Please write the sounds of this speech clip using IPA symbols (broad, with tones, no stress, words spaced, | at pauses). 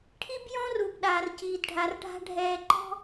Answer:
ʈʰi˦bjɔ̃˦ru˨b ɗaː˨rciː˨dɖʱa˨rɖʱa̤˦ ɖʱɛː˨ǃɔ̤˦